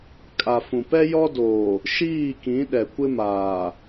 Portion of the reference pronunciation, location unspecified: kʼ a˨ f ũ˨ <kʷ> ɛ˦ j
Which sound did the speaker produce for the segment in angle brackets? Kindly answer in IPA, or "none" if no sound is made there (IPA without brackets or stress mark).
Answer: p